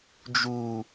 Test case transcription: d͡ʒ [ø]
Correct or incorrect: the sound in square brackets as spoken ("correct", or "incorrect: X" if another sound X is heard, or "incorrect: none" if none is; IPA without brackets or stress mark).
incorrect: u